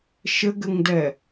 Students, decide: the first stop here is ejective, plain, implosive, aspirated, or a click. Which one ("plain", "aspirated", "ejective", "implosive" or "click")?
plain